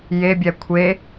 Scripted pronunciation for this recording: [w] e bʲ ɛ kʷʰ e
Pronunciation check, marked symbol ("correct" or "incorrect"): incorrect